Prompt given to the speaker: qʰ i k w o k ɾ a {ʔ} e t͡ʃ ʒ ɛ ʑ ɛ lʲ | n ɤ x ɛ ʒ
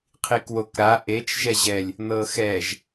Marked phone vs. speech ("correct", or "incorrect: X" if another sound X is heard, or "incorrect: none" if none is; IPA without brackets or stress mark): correct